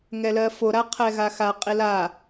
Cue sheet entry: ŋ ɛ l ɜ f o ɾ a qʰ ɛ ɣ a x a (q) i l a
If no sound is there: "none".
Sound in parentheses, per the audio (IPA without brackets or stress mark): qʼ